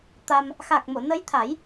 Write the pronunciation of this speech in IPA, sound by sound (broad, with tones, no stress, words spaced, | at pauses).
t̪a˧m | xa˨˩k̚mo˨˩˨nə˧˥jt̪ʰa˨˩˦j